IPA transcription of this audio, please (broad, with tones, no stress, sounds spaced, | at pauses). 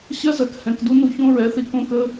ɕ ɜ˦ z ɜ˨ k h ɛ̃˨ k d u˦ n u˨ ç õ˦ ɹ ɛ˨˦ θ i˨ k õ˦ k ə˦